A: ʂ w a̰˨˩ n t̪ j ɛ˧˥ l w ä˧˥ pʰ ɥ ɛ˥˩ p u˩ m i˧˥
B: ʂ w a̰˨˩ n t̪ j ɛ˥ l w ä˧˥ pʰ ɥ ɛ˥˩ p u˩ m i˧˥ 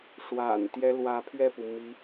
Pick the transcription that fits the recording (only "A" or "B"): B